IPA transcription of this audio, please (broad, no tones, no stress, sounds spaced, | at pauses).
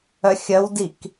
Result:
œ xʲ œ w d i k